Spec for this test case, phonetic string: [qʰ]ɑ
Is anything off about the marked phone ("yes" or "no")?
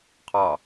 no